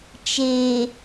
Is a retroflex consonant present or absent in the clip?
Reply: absent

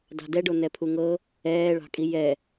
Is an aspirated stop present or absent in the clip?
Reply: present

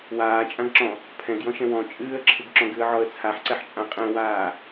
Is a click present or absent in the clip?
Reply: present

